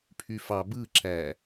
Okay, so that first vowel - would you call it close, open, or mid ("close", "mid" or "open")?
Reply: close